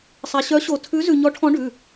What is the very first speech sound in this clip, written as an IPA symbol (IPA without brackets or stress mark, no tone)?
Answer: sˤ